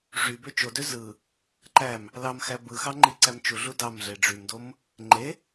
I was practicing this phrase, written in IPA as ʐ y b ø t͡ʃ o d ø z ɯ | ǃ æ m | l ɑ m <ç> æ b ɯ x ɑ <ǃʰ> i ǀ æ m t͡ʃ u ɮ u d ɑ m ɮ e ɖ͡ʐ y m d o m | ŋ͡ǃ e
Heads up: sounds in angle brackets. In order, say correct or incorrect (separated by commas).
incorrect, incorrect